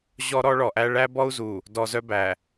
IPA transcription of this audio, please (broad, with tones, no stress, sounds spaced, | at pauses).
ʑ ɔ˦ ɾ ɔ˦ ɭ ɔ˨ ʔ æ˦ ɭ æ˦ b ɔ˦ u̯ z u˨ | d ɔ˨ z œ˦ b æ˨